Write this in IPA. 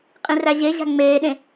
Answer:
qʼ ĩ r æ ʑ e ʑ æ̤ ŋ͡m eː ɗ ẽ

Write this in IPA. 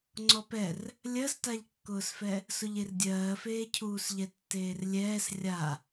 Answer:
ŋ͡ǀ ɔ p ɛ r | lʲ ɜ s t a ʎ kː ʊː s f ɛ | s ʊ ʎ e r dʲ ɜː f eː cʰ uː s ʎ ɛ tː eː r lʲ ɛː s rʲ a

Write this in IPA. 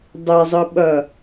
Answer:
dˤ ɛ zˤ ɯ ɓ ʌ

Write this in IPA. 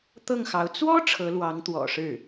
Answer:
t̪ ɤ˥˩ ŋ x ɑ˧˥ ʊ̯ t͡s w ɔ˥ ʈ͡ʂʰ ɤ˧˥ l w ɑ˧˥ ŋ t̪ w ɔ̰˨˩ ʂ ɻ̩˥˩

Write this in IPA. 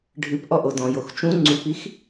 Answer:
ɖʱ ɨ p ʔ ɔ ʔ o d ɔ̃ j o x t͡ʃ ũ ŋ͡ǀ u p i x

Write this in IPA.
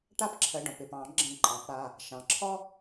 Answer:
ʈ a˦ p ǁʰ ə˩˧˩ ɖ ɔ̃˩ p ɪ˩˧˩ p ɑ̃˨˩˦ ɡ͡ǁ ə̃˧˩ ǃʼ ɑ̃˨˩˦ p ɽ a˩˧˩ | ʃ ɑ̃˩ ǁʰ ɔ˦

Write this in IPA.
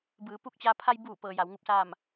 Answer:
b ɯː˩˧ p u˧˥ k̚ t͡ɕ aː˧ pʰ a˧ j b uː˧˩ p ɤː˩ j a˩˧ w ŋ u˧˥ p̚ s aː˥˨ m

